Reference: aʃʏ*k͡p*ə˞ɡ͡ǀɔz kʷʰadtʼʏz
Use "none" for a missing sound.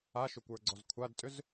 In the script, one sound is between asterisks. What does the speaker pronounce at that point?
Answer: kʷ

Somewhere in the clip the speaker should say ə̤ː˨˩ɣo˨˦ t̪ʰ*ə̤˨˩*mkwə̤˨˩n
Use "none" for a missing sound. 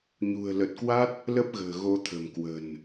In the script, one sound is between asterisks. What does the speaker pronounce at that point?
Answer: ə̤˨˩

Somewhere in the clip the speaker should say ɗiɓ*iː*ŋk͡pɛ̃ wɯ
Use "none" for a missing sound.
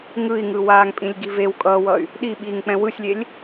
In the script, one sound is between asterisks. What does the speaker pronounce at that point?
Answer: iː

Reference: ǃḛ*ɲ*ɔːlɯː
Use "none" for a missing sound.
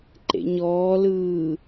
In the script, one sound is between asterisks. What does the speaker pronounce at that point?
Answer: ɲ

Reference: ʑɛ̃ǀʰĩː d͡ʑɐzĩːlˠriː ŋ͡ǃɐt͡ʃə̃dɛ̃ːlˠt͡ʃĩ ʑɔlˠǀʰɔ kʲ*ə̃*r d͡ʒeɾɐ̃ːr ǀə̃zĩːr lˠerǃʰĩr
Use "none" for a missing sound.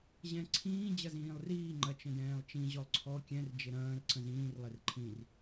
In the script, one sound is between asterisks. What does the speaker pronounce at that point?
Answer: ɛ̃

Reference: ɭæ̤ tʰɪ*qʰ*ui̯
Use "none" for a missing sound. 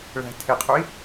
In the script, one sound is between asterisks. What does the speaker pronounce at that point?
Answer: qʰ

